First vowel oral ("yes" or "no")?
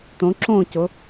no